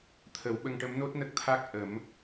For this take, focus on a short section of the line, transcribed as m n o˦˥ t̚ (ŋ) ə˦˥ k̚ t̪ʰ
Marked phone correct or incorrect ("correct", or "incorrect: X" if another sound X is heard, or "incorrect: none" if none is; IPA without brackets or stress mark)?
incorrect: n